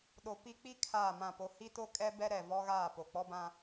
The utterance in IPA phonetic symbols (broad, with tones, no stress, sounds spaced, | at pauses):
ɗ o˨ p i˦ k͡p i˦ kʰ aː˦˨ m ã˦˨ p o˦ h i˦ t o˦ kʼ ɛ˦ b ɛ˦ ɾ ɛ˨ v ɔ˦ ɣ aː˦˨ p o˨ k͡p ɔ˦ b ã˦